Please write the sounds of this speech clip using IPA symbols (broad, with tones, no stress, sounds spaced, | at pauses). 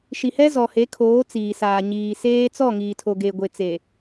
ʃ i˨ h ɛ˦ z ɔ˨ h e˨˦ kʰ oː˨˦ t͡s iː˨ s aː˨ ɲ iː˨ s eː˦ t͡s ɔ˦˨ ŋ iː˨ tʰ o˨ ɡ e˨ ɡʷ e˨ t͡s e˨